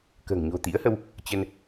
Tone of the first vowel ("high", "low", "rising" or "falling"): low